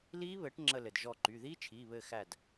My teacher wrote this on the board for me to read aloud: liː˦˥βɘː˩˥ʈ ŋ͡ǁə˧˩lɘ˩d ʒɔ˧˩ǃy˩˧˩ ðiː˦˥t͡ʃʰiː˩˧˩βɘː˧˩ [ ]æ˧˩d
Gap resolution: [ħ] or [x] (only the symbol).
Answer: x